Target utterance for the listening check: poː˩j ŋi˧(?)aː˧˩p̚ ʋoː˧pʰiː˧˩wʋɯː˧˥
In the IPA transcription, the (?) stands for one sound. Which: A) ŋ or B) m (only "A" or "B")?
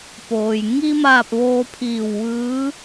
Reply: B